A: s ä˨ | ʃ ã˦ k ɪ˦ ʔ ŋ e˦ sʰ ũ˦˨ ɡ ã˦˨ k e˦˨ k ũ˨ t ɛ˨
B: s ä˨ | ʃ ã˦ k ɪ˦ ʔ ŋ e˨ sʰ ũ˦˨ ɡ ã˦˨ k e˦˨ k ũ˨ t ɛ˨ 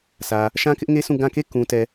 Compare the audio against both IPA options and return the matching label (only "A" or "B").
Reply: A